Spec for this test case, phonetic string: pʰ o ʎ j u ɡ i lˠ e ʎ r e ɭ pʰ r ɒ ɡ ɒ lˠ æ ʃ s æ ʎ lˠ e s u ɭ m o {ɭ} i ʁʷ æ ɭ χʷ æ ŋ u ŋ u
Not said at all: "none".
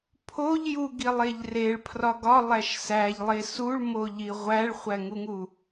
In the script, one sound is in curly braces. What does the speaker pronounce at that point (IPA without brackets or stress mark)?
ʎ